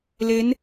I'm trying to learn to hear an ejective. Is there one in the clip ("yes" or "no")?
no